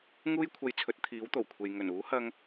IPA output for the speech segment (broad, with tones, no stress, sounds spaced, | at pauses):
ŋ uː˥ j kʷʰ ɐ˧ j t͡sʰ ɵ˨˥ t̚ t̪ʰ iː˨˥ w t̪ o˨˩ w kʷʰ e˨ j ŋ ɵ˨˩ n uː˨˥ h ɐ˧ ŋ